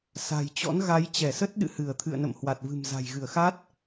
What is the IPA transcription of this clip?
sa̤˨˩jt͡ɕɔ̰˧˥n ɣa˨˦jt͡ɕɛ˧˩sə˦˥t̚ɗɨ̰˧˨ hɨ˧˩ə̯t̪ʰɨ̰˧˨ə̯ nə̰˧˨mhwa˨˩t̚vɨ̤˨˩m za̤˨˩jɣɨ˧˩ə̯xa˦˥t̚

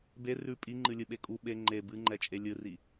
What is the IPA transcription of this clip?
be rʉ pʼiŋ͡ǃɨlʲɨɓe kʼu ɓe ŋ͡ǃe bɨŋ͡ǃɛt͡ʃʼe lʲɨri

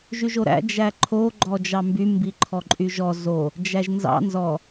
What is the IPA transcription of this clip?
ʒyʒoɾæ̰ d͡ʒæǃʰo ɡ͡ǃɔd͡ʒɑmby mbiǃʰɔǃʼyʒɔ zo | d͡ʒæʒnzɑ̰ nzɔ

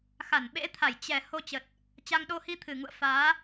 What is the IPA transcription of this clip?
xa˧˩nɓḛ˧˥t̪ʰa˧˩j t͡ɕɛ˨˩ ho˧t͡ɕə˨˩t̚ | t͡ɕa˧ŋɗo˧ hi˧t̪ʰɨ˨˩ŋṵ˧˨ə̯ faː˨˦

